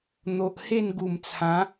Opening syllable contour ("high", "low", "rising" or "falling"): low